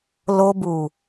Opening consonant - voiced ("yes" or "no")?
yes